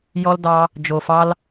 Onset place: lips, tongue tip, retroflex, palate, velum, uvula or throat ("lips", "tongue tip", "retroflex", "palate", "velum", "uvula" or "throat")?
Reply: palate